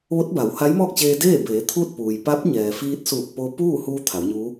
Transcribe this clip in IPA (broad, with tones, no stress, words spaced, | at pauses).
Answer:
ʋo˧˥t̚ba˩˧w ha˧˥jmɔː˥˨k̚t͡ɕeː˧ deː˥˨beː˩˧ t̪ʰuː˥˨t̚puː˩j pa˧˥p̚ɲɛː˩fiː˧t̚suː˧˩k̚ po˧puː˥˨ huː˧ t̪ʰa˩˧wɲuː˧˥